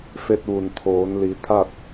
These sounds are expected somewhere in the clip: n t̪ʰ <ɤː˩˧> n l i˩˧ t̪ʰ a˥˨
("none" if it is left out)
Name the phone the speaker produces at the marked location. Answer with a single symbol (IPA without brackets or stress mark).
oː˩˧